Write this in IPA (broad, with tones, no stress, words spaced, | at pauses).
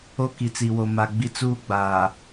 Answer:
o˦ki˨t͡si˨wo˨ ma˨ ɡ͡bi˦ t͡suː˦ɡ͡baː˨